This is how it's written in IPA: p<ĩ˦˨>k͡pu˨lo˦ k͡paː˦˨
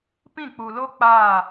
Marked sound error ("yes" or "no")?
no